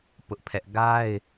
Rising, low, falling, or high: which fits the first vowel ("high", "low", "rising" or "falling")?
high